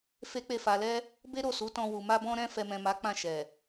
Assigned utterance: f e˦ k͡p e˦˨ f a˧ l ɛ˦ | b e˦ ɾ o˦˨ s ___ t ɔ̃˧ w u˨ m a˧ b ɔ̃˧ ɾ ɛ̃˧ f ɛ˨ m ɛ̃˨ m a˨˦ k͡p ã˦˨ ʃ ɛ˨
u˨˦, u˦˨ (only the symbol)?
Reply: u˨˦